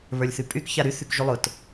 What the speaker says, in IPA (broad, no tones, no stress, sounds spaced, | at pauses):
β ə˞ lʲ θ y pʼ y k ç a ɾ y θ y k ʒ y lˠ ʊ t